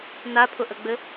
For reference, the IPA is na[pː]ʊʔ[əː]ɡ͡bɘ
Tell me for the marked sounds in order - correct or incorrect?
incorrect: pʰ, incorrect: ə

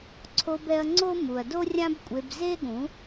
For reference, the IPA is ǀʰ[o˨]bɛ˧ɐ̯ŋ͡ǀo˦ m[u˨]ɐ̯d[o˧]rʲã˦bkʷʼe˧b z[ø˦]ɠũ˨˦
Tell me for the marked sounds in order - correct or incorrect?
incorrect: o˧, correct, incorrect: o˦, incorrect: e˦

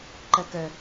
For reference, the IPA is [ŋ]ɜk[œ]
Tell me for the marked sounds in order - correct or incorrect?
incorrect: ǃ, correct

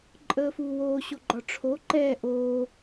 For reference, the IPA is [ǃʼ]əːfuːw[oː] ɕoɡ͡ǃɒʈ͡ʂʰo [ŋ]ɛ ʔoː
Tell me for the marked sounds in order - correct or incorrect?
correct, correct, incorrect: ǃ

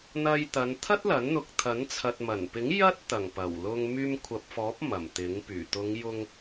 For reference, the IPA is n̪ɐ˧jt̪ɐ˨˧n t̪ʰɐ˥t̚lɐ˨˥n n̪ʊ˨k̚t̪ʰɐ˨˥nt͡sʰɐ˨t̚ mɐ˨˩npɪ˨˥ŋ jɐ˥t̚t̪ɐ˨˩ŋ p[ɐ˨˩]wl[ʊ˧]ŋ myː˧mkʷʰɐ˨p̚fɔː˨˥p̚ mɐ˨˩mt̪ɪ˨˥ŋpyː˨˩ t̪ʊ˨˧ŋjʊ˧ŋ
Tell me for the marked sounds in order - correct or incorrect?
correct, correct

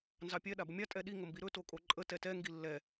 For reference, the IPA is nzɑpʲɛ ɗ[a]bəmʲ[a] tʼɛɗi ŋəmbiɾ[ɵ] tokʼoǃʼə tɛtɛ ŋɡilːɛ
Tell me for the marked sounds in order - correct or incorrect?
correct, correct, correct

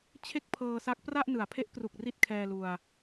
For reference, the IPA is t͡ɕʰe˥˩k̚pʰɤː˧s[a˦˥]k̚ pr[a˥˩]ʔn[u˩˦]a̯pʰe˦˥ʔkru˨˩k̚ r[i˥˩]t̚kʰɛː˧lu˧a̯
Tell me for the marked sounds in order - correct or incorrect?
correct, correct, incorrect: ɯ˩˦, correct

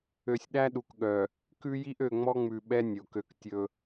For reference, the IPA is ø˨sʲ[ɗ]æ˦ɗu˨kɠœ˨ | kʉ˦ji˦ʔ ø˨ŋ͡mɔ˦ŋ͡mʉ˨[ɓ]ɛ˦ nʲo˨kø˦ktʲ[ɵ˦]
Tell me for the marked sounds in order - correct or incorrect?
correct, correct, correct

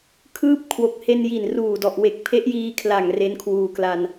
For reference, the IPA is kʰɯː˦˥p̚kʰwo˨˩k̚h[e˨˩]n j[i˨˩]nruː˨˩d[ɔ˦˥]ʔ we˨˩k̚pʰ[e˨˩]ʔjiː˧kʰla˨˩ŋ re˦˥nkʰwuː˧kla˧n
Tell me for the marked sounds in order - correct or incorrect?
incorrect: e˧, correct, incorrect: ɔ˨˩, incorrect: e˦˥

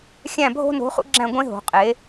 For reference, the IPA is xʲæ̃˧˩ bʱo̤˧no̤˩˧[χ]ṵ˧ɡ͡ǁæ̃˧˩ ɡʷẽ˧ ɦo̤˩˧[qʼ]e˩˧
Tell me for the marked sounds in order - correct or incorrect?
correct, correct

